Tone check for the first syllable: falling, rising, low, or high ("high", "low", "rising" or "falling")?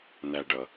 low